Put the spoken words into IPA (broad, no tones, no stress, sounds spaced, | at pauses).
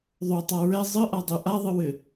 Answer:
ðˤ o tˤ a ɹ ɛ zˤ ɨ ʔ a dˤ ʉ ʔ a ðˤ ɨ w ɘ